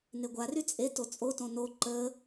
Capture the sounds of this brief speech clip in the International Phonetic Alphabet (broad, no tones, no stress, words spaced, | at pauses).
neɡʷary t͡sʼe tot͡sʼotõ no ǃə